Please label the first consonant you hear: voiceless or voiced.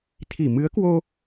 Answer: voiceless